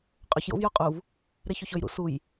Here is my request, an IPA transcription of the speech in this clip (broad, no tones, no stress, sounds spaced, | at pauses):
qʼ ɵ ç j o̰ v j o qʼ u v | ɾ e ç o ç ɵ j ɾ ṵ s u j